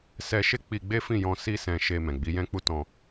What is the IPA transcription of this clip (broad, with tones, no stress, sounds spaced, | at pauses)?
s ɛ˧ ʃ e˦ k͡p i˧ ɡ͡b e˦ f ĩ˦˨ j ɔ̃˧ s i˧ s ɛ̃˧ ʃ e˧ m ɛ̃˨ ɡ͡b i˨˦ j ɛ̃˦ k͡p u˦ t ɔ̃˧